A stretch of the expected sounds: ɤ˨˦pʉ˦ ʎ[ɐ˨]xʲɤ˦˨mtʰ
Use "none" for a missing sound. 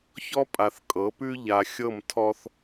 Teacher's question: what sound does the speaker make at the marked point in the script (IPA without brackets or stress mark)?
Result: a˨